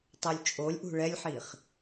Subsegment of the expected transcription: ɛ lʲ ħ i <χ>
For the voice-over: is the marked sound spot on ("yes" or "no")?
yes